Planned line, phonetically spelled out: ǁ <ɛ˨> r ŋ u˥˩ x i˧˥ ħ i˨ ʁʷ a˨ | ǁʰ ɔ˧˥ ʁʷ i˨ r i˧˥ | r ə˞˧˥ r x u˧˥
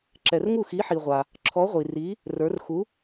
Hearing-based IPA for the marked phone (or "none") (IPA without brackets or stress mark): ɛ˨